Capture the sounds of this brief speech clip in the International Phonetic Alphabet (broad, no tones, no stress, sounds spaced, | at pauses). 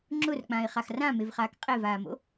ŋ͡ǁ ʊ r k͡p ã ɪ̯ χ a x r ã m e v χ aː k qʼ e v aː m o̰